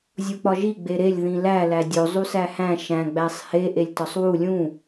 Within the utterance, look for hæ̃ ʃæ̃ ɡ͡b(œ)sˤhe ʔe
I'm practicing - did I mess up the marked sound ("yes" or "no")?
yes